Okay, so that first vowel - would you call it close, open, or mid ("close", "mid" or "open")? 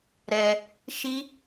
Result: mid